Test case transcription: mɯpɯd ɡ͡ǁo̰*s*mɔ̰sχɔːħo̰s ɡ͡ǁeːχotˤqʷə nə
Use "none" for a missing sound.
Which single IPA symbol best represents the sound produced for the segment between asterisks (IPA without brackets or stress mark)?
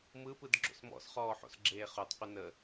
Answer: s